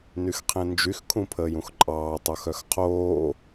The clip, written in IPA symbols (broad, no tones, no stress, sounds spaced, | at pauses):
n y x qʰ ẽ n d͡ʒ y x kʰ ũ pʰ əː j ũ x ǃʼ ɑː tˤ o x œ x qʰ oː